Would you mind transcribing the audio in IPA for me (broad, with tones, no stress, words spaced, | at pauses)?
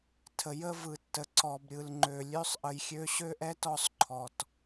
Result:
tʰə˨jə˦vɯ˨tːə˨ ǀɔ˨bɾʲɯ˨l ŋ͡ǃø˨lʲø˦sˤ ʔə˨jxʲø˨˦ ɕø˦ʔɛ˦tɔ˦˨sˤ ǃʰɔ˨t